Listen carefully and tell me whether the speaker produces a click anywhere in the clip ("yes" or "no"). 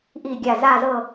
no